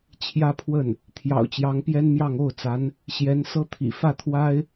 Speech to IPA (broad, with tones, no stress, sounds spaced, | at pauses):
t͡ɕʰ j ä˥ pʰ w ə˥˩ n | t̪ʰ j ɑ̰˨˩ ʊ̯ t͡ɕ j ɑ˧˥ ŋ p j ɛ˥ n m j ɑ˥˧ ŋ o˥˩ ʊ̯ t͡s a˧˥ n | ɕ j ɛ˧˥ n s ɤ˥ t̪ʰ ḭ˨˩ f ä˥˩ t̪ʰ w a˥ ɪ̯